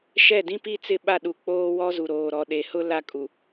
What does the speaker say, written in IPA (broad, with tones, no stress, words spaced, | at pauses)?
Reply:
ʃɛ˦˨dĩ˦pi˦t͡sɪ˦˨ ɓa˦˨ɗu˨ k͡poː˦wɔ˦zu˨ ɾoː˨ɾɔ˨ɗe˨hʊ˦ la˦kʼu˨